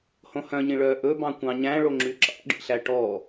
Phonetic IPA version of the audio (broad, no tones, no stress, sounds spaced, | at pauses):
h õ h œ̃ ɲ ĩ ɭ œː ʔ ɵ b ɑ̃ kʷ ɑ̃ ɲ æ̃ ɭ o ŋ͡ǁ y ǁ ɑ̰ ɖ ḭ ɬ æ ʈ ɔ